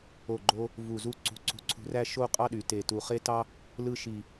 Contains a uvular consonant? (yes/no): yes